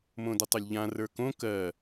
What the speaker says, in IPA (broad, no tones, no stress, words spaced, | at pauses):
mõdətˤɵlʲʎã rə˞kõ kɜ